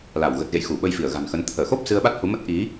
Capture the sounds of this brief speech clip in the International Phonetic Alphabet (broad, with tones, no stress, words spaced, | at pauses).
la˧˩w ɣə˨˩t̚ɣḛ˧˨j xu˧˩ɓə˧jfi˧˩ə̯ ɣa̤˨˩nxə˨˦n t̪ʰəː˧˩xo˦˥p̚ sɨ˧ə̯ɓa˦˥t̚ hu˨˦mə˦˥t̚ ʔi˨˦